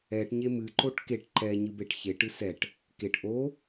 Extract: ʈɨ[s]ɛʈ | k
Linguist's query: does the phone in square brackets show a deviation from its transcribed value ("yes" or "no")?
no